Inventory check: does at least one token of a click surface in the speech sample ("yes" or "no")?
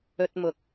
no